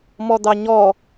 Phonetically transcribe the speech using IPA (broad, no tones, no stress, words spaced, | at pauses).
mɔd̪ɑɲɔ